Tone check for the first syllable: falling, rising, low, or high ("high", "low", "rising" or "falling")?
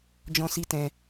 high